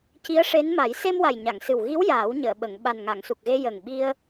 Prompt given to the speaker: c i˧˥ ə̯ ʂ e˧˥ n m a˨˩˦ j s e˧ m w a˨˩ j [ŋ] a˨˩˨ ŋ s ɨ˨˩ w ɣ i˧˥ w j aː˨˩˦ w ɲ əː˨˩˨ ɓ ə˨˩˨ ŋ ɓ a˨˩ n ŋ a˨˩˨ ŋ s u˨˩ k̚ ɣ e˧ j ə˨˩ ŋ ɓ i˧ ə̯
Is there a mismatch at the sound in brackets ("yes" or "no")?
yes